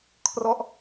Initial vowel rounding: rounded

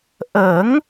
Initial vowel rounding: unrounded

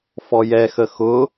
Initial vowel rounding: rounded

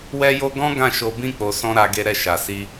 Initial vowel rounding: unrounded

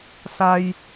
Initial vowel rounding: unrounded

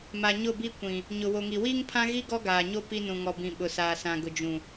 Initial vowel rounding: unrounded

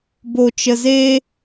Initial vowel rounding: rounded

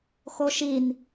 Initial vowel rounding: rounded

